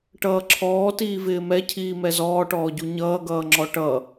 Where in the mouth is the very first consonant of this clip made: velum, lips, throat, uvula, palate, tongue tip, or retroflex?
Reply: retroflex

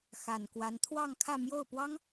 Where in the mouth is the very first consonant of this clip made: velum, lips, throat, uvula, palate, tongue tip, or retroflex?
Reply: velum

